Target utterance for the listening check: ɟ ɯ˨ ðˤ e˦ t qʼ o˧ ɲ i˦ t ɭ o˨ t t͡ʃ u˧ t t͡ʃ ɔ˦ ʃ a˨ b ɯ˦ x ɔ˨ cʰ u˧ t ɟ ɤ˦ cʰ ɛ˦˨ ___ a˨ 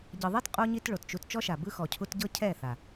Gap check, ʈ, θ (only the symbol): θ